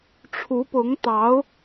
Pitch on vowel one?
rising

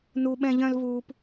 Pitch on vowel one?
high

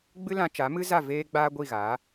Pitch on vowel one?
high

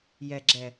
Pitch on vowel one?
low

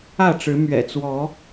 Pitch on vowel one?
falling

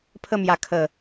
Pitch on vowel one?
falling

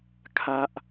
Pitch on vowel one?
high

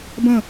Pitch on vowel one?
falling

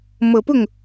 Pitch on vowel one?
low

